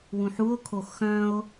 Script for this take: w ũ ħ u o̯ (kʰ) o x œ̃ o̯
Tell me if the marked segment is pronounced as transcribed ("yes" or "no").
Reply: yes